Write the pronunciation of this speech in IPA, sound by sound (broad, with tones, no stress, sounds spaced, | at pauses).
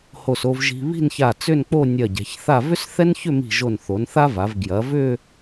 h o˧˩ s o˧ v ʒ i̤˧ β i̤˥˧ n ç a˧˩ t͡s ʏ˥˧ n k͡p o˥˧ nʲ ɐ˧˩ ɟ ɛ̤˩˧ ç θ a˥˧ v ʏ˥ s θ ɛ˥ n ç ʏ˥˧ m i̤˧˩ ʒ o˧˩ n θ o˩˧ n θ a˥ v a˩˧ v ɡ j ɐ˩˧ v ʏ˥˧